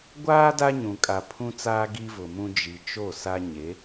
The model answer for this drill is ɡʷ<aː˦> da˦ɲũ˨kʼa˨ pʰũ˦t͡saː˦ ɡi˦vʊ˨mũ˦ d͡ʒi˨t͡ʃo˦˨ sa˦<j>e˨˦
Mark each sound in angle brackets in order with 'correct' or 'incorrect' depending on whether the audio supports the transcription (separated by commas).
correct, incorrect